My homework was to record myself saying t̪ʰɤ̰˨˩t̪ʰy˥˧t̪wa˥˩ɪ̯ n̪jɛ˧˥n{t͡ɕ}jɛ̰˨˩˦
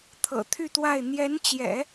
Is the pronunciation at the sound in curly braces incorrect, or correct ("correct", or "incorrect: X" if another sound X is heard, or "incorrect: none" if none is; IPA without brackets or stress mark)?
correct